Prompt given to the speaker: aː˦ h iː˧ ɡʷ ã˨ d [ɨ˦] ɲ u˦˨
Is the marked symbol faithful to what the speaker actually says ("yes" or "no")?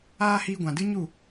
yes